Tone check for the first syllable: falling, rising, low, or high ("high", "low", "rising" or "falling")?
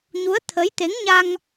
rising